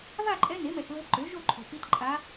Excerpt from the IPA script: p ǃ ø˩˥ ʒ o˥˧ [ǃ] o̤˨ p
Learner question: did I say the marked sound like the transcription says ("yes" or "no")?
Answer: no